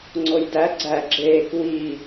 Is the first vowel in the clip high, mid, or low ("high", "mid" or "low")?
mid